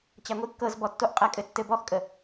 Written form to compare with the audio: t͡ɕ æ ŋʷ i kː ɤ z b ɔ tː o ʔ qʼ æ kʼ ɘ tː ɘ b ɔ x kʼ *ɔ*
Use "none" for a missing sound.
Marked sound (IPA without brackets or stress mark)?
ə